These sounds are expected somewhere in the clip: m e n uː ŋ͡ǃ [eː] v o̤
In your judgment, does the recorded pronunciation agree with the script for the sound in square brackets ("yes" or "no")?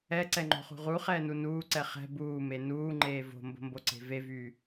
yes